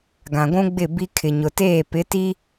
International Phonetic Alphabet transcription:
ɡ ã˨ ɡʷ ũ˦ ɡ͡b ɪ˦˨ b i˦ kʰ ɪ˨ ɲ ʊ˨ t eː˦˨ p ɪ˨˦ t i˦

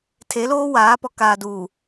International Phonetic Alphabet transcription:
tʰ e˨˦ l oː˦ w aː˨˦ p ɔ˨ k aː˨ d uː˨

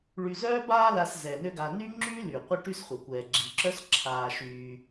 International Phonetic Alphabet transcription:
ɭ y˨ z œː˥ b aː˦ l a˨ s z ɛ˩ n ø˦ ɡ a˨ n y˥ ŋ͡ǁ yː˥ l y˩ qʷ ɐ˦ ʈ y˦ s χʷ ɐ˩ kʷ ɛː˩ ɡ͡ǁ i˩ ǁ œ˥ s ǁʰ aː˨ ʃ yː˨

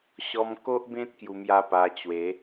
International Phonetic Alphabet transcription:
ɕ ɔ˧ m k o˦ ʔ b ẽ˦ t̚ k j u˧ m j a˦ p a˧ t͡ɕ w e˨˦

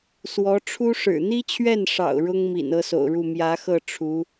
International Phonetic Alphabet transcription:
s w ɔ˧˥ ʈ͡ʂʰ u˥ ʂ ɻ̩˨˩ n̪ i˥ t͡ɕʰ ɥ ɛ˥˩ n ʂ ɑ̰˨˩ ʊ̯ ɻ ʊ˥ ŋ m ḭ˨˩ n ɤ˥ s o̰˨˩ ʊ̯ ɻ u˥˩ m j ä˧˥ x ɤ˥˩ ʈ͡ʂʰ u˧˥

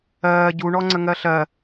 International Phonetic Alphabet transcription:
ɜː ɟ u ɳ ɔ ŋ͡ǀ ə ŋ ɜ ɬ ɜ

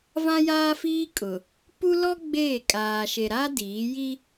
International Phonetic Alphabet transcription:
v ã˦ j aː˦ f iː˦ kʼ ʊ˨ | p u˦ l ɔ˦ ɡ͡b eː˦˨ kʼ aː˨ ʃ e˨ ɾ a˦ d iː˨˦ j i˦

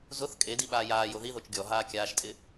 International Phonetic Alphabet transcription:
z ʊ θ kʼ e d i ɓ aː j aː j o ð i ð o t͡ʃ ɡʲ ɔ ɦ aː kʲ aː ʃ tʼ ɪ

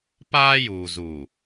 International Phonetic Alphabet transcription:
p aː˦ j uː˨ z u˨

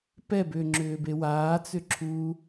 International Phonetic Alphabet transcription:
p ɛ b ʏː ŋ͡ǁ ʏː b e w aː t͡s ʏ ǁʰ uː

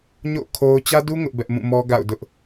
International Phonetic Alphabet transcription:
ɲ o̰˦˨ kʰ o˦ ʊ̯ t͡ɕ ä˦ d u˦ ŋ ʊ˦ ʔ b ɛ˦ ʔ m ũ˦˨ m ɔ˦ ɡ a̰˦˨ ʊ̯ d ʊ˦ ʔ

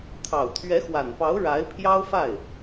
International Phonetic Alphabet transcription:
t̪ʰ ɑ˨˩ ʊ̯ t̪ʰ ɥ ɛ˧˥ x w a˨˩ n p ɑ˧˥ ʊ̯ ɻ a˧˥ ɪ̯ pʰ j ɑ˥ ʊ̯ f a˥˩ ɪ̯

